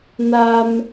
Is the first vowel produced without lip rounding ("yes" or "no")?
yes